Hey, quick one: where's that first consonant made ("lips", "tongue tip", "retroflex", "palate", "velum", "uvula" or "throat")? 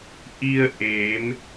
throat